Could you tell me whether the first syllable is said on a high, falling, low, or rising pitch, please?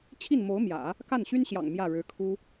falling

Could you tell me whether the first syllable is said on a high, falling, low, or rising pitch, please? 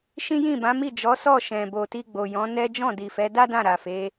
high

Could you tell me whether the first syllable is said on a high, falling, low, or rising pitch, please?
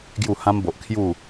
falling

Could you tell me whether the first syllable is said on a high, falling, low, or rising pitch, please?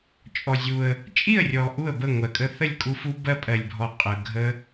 low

